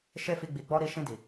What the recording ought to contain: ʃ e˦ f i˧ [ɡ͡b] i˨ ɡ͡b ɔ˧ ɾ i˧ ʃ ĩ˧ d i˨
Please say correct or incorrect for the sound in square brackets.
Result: correct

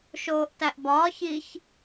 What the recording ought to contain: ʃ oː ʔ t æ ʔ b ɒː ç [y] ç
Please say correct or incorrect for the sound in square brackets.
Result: incorrect: i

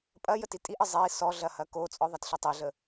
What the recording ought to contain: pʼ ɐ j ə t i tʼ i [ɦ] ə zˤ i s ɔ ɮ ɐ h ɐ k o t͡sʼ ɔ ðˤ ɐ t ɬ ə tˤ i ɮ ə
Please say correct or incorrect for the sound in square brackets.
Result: incorrect: ʔ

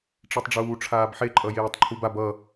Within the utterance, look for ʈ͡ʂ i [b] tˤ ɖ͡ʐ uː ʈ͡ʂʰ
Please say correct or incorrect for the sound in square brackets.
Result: incorrect: none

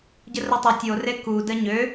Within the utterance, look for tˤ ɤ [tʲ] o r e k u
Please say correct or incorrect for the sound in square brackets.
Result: correct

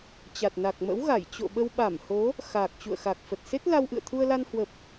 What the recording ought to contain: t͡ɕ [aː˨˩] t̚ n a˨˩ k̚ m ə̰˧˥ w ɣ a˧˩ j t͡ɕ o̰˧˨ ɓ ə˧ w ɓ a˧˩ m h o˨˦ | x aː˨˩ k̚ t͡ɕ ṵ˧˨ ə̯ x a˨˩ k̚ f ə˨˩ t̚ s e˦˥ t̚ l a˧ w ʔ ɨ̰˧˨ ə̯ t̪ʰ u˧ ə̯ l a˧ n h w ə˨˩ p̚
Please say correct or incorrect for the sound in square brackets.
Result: incorrect: a˨˩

